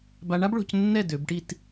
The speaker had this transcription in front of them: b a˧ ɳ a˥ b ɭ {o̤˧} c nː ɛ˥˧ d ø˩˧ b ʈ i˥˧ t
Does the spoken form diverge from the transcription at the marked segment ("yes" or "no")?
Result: no